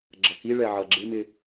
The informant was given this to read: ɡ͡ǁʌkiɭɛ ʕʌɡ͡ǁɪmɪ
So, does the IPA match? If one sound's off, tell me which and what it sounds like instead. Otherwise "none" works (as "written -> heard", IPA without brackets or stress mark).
none